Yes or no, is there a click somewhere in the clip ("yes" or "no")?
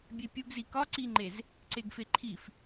yes